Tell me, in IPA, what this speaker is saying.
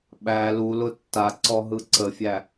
ɓ æ l u l ʊ tː a ǀ ɔ ɦ ɯ ǀ ə fʲ æ

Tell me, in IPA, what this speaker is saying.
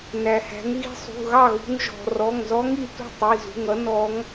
n æ˩ h æ̤˩˧ ŋ ɣ i̤˧ sˤ ṳ˩˧˩ ɣ ɑ˥˩ ɣ ṳ˧ ŋ ʒ ɔ̤˩ r ɔ˩˧˩ ŋ z ɔ˧˥ ŋ i˩ t ṳ˥˩ tˤ i˩˧˩ z ṳ˩˧˩ ŋ ʌ˧˥ n ɔ˧˥ ŋ

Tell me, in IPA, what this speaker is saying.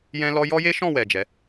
j ɛ̃˦ l ɔ˦ j ɔ˦ j e˦ ʃ ɔ̃˦˨ w ɛ˨ d͡ʒ ɛ˨˦

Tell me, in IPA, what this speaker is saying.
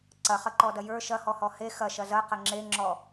ǀ ɐ χ ɐ ǃ ɔ d ɐ j ə˞ ʃ ɐ h ɔ h ɔ h e x ɐ ʃ ɐ z ɐ q ɐ ŋ͡ǁ e ŋ͡ǁ ɔ

